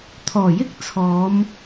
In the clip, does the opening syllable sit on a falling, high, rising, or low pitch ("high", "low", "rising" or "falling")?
low